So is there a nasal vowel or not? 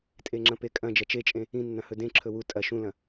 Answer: yes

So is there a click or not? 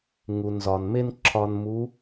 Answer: yes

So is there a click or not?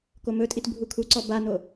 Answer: yes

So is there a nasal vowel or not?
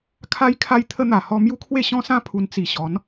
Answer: yes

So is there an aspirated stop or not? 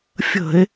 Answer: no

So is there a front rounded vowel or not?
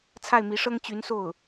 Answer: yes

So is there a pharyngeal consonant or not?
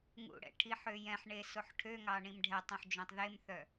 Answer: yes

